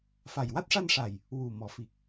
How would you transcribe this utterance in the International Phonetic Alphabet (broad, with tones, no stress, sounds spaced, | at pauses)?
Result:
f a˨˩ j w a˦˥ t̚ ʂ a˧ n ʂ a˨˩ j | w u˨˩ m ɔ˨˩˦ f i˨˩ k̚